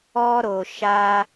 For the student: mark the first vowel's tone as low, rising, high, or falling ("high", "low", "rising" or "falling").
high